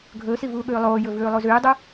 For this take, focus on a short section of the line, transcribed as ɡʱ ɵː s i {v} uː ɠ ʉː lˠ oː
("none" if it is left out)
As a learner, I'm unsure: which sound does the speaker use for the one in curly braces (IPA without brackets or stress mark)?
v